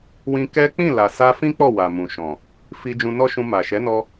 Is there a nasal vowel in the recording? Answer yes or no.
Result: yes